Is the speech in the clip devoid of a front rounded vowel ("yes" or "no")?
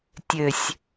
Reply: no